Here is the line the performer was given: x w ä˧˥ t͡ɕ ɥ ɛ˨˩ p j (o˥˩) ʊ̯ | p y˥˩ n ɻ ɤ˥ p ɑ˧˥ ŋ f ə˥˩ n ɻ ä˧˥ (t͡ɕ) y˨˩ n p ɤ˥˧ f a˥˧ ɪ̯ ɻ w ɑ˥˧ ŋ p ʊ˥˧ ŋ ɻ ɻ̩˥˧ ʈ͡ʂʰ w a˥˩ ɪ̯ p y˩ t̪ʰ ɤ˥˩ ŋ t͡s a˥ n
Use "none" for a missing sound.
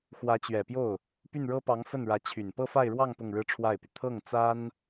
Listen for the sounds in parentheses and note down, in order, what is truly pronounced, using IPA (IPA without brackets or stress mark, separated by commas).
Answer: o˥˩, t͡ɕʰ